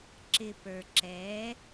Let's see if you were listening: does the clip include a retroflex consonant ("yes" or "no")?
no